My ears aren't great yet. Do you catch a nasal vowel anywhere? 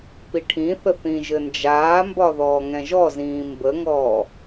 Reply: yes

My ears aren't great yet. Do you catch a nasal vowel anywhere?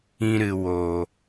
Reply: yes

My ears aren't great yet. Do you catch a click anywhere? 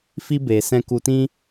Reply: no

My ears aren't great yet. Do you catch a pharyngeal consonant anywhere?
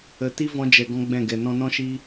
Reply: no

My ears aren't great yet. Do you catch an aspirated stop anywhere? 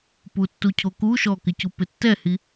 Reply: yes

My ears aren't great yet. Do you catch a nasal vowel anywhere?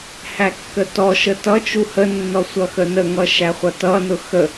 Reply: no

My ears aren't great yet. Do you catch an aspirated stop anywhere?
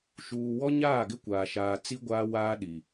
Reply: no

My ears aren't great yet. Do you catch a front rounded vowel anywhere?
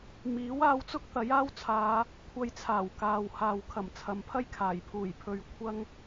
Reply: no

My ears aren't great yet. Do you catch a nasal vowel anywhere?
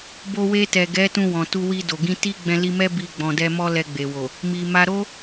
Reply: yes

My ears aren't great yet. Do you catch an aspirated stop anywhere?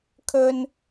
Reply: yes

